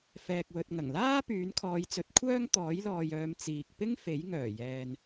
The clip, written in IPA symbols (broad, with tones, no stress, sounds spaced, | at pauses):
f ɛː˨ k̚ w ɵ˨ t̚ ŋ ɐ˨˩ ŋ l aː˥ p yː˨˥ n kʰ ɔː˨˧ j t͡s ɵ˨˥ t̚ kʷʰ œː˥ ŋ t̪ ɔː˨˥ j l ɔː˨ j œː˨˧ m t͡s iː˨ k̚ p ɪ˥ ŋ f e˨˥ j ŋ œː˨˩ j ɛː˨ n